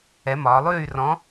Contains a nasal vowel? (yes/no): yes